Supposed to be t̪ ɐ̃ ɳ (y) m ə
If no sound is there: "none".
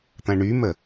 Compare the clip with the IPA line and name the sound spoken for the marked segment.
y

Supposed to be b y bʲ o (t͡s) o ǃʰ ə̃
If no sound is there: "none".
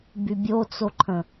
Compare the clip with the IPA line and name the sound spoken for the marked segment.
t͡s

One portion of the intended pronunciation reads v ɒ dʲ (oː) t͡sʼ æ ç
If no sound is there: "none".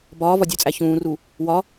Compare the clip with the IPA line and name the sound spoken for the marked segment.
o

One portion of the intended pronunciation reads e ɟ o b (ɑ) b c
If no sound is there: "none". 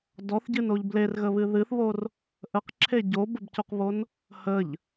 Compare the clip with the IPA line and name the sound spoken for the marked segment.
ə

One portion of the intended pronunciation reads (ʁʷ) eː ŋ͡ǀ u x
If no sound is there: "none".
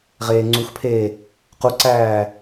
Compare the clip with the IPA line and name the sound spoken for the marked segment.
ʁ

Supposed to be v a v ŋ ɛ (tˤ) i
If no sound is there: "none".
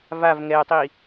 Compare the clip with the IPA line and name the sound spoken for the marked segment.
tˤ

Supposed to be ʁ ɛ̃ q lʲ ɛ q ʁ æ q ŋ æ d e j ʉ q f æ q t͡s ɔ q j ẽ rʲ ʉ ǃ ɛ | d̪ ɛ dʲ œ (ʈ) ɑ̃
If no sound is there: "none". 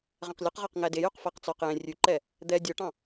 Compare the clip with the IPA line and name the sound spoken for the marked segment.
ʈ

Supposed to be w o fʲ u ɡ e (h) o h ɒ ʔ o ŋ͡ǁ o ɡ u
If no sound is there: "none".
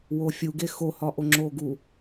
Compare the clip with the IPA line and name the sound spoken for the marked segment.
x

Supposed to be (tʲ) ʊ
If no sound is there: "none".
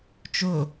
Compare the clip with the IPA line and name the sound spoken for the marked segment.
t͡ʃ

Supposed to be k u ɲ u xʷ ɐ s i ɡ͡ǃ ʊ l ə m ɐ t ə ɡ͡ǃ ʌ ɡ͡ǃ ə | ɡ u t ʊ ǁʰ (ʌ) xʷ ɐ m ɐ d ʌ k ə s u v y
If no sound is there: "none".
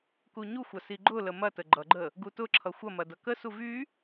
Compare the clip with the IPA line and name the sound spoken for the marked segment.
ʌ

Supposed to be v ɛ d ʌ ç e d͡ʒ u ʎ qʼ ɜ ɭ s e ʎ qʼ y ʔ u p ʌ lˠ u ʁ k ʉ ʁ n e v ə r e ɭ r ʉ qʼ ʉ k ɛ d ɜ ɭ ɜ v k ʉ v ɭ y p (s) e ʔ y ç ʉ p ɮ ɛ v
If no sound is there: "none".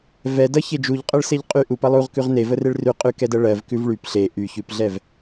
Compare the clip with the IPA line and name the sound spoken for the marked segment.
ɬ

